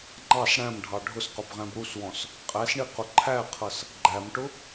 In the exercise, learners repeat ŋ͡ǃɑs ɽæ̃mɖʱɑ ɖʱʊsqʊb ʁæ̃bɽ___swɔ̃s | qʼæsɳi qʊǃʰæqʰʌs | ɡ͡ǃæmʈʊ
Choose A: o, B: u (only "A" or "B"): B